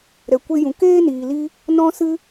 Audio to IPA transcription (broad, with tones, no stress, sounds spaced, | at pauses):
ɾ ɛ˨ kʷ e˧ j ũ˨ k eː˦ n iː˨ l i˧ | n ɔ̃˧ s ɨ˧